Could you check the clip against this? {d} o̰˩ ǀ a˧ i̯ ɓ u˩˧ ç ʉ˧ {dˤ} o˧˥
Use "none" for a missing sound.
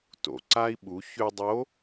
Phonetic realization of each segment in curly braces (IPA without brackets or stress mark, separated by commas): t, dˤ